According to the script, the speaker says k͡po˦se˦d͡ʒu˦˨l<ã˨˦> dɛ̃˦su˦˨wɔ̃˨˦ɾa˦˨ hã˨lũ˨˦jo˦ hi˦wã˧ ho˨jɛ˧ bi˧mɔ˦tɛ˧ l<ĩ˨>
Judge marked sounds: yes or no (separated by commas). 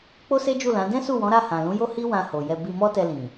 yes, yes